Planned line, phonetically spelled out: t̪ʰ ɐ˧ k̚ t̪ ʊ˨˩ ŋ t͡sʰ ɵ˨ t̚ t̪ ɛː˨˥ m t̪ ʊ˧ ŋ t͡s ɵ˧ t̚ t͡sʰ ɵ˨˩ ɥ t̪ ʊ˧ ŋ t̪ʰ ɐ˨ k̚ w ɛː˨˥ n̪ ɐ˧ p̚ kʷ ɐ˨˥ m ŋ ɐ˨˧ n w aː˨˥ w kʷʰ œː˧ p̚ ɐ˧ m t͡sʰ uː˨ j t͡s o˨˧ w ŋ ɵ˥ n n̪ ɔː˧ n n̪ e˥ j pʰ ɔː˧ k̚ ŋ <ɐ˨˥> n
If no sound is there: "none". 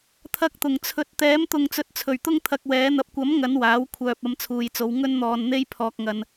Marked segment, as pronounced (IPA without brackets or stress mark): ɐ˧